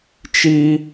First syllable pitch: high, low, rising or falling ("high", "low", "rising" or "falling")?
high